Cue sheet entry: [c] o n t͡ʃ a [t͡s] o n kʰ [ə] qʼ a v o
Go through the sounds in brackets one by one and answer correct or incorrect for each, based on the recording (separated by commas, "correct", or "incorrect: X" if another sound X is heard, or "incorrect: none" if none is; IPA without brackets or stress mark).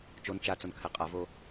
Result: incorrect: t͡ʃ, correct, incorrect: ɛ